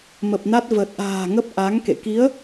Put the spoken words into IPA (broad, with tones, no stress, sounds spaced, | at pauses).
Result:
m ə˨˩ p̚ n a˦˥ t̚ v ə˨˩ t̚ ʔ a̤ː˨˩ ŋ ə˦˥ p̚ ʔ a˨˦ ŋ k ḛ˧˨ k i˨˦ ə̯